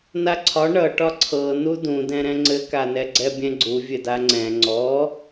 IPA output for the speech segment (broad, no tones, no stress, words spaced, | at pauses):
naǀʰɒ ɳʌʈɒ ǀʰɤnu dũdɛ̃ɾɛ̃ ŋ͡ǀɘkanɛ ɡ͡ǀɛbʲɛ̃ɡ͡ǀu vʲɘdaŋ͡ǀɛ̃ ŋ͡ǀɔ